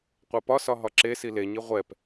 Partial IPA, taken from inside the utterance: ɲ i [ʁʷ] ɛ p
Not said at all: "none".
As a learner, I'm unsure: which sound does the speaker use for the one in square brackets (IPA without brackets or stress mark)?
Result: ʁʷ